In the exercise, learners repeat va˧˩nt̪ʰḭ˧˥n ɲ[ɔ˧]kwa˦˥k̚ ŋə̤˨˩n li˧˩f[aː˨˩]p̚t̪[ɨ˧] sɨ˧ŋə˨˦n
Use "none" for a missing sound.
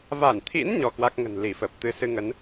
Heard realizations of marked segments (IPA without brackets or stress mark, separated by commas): ɔ˧, əː˨˩, ɨ˧